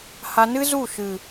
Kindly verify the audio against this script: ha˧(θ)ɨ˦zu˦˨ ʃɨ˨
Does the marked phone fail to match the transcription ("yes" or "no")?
yes